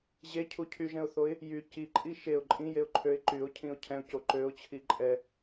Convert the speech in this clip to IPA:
ʑ e cʰ u cʰ y ʒ ɛ̃ ʊ̯ θ o ɪ̯ | j y c i ǃʼ i ʃ e ʊ̯ ǃʼ ĩ j e ʊ̯ ǃʰ ø ɪ̯ ǃ y ʊ̯ cʰ ĩ ʊ̯ cʰ ɛ̃ ʊ̯ c o ǃ ø ʊ̯ t͡ɕʰ i ǃʼ ɛ

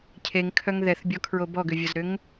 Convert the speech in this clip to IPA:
cʰ e ŋ kʰ œ ŋ ð ɛ θ bʲ ɔ kʰ ɹ o b ɔ ɡ ʏ vʲ ɐ z ɾ ʏ ŋ

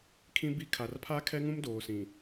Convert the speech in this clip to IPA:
kʰ ĩ˦ b i˦ kʰ a˨ r pʰ a˦ kʰ ɛ˦ ŋ ũ˦ m d oː˨ s ĩ˨

